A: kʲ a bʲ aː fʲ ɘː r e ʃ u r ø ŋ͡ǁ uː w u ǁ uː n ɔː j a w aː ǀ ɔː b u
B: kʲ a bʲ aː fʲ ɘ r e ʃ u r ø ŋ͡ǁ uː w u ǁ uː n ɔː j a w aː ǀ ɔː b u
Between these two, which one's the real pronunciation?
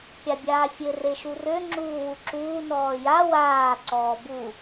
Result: B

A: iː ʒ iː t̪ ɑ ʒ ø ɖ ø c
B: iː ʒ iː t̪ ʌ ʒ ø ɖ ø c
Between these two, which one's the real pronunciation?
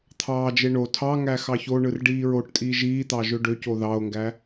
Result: A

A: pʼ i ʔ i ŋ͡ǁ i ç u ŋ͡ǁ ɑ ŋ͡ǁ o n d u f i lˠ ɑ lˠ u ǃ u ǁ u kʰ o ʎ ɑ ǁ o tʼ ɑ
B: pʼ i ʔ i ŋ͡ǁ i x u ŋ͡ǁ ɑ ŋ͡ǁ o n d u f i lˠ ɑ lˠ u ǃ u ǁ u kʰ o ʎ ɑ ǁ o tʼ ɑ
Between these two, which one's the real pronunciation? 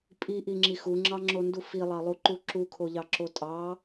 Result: B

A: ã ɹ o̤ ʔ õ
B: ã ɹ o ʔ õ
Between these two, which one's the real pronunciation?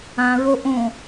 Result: B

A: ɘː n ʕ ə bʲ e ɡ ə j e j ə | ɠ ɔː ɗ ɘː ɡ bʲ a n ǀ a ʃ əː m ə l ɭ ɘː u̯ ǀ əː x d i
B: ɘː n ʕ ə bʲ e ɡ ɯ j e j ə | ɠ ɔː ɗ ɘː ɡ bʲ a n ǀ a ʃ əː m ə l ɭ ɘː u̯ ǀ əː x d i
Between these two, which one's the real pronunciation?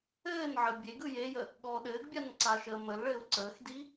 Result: B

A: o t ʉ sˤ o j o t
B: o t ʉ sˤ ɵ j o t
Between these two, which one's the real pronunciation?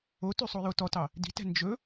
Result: A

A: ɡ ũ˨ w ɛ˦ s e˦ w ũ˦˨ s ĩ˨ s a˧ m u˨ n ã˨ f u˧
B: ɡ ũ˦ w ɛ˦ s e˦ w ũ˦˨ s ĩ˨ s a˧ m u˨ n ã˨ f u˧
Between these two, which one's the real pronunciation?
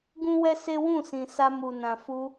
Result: B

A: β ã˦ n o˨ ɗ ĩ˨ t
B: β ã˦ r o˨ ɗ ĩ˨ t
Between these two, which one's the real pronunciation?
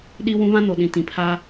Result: A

